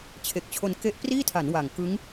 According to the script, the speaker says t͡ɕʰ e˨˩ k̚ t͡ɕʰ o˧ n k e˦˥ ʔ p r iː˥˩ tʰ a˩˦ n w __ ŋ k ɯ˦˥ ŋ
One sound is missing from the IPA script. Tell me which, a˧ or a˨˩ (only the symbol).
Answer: a˨˩